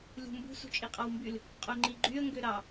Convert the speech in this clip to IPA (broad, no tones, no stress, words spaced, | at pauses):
lʲṳmbṳ sṳt͡ʃʼiqʼɑwmbyl | qʼoŋ͡ǃiɡ͡ǃyə̯ ŋɡøɾɑ